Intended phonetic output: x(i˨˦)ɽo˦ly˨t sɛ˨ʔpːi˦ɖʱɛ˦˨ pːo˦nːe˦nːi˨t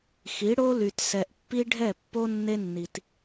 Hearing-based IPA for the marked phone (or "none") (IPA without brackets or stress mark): i˨˦